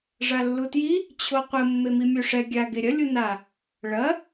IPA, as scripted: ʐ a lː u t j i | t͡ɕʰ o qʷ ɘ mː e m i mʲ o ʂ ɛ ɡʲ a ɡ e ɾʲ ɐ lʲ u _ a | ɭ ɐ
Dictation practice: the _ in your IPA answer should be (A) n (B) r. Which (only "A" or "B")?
A